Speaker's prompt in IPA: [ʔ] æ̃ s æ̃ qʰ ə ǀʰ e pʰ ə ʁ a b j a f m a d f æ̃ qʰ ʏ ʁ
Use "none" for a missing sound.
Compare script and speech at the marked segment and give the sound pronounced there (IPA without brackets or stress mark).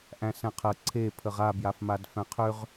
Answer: ʔ